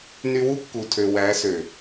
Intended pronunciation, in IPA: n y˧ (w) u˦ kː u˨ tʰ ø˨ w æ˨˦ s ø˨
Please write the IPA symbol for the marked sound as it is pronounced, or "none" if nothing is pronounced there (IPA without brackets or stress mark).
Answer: w